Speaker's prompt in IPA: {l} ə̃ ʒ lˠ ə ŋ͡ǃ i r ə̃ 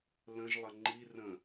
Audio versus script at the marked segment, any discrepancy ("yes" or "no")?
no